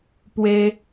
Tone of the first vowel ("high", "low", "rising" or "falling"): high